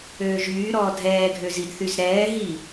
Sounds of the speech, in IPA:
øː ʒ yː ɾ ɔː dʱ ɛː ɡʱ ø z i d θ y z ɾ ɛː ɦ i

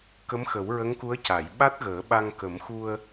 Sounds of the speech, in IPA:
k ə˧˥ m x ə˨˩˦ w ɹ ə˧˥ ŋ k u˧˥ ə̯ c a˨˩˨ j ɓ a˦˥ t̚ ɣ əː˨˩˦ ɓ a˧ ŋ k ə˨˩˦ m x u˧ ə̯

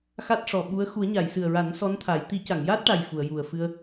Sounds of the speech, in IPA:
x a˦˥ t̚ ʂ ɔ˨˩ ɓ u˧˥ ə̯ x u˨˩˦ ə̯ ɲ a˨˩˨ j s ɨ˨˩ ə̯ ɹ a˨˩˦ n s ɔ˧˥ n t̪ʰ a˨˩˦ j t̪ i˨˩˦ c a˨˩˨ ŋ j aː˦˥ t̚ ʈ a˨˩ j f u˨˩˨ ə̯ j u˨˩ ə̯ f ɨ˧ ə̯

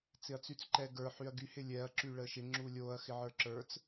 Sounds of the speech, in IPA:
t͡s ɪ ɐ̯ t͡s y t͡s ǃ ɛ ɡ ə˞ ħ y ɐ̯ ɡ y h ɪ lʲ ɛ ɐ̯ ǁ y ɭ ə ʃ ɪ ŋ͡ǁ u lʲ o ɐ̯ x ɪ ʕ ə˞ ǁ ə˞ t͡s

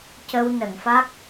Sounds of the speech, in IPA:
c ə˧ w n ə˨˩˨ ŋ f a˦˥ k̚

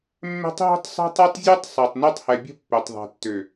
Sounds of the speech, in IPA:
mː ɛ̤˦ tˤ ɦ o̤˦ tˤ sˤ ɛ̤˦ tˤ ɜ˦ tˤ zʲ ɜ˦ tˤ sˤ ɜ˨ tˤ n ɜ˦ tˤ h ɛ˨ bʲ ə̤˦ pː ø˨ tˤ ðˤ ɛ̤˨ tː ø˨

